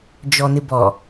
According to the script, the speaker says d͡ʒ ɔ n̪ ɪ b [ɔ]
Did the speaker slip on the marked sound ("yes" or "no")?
no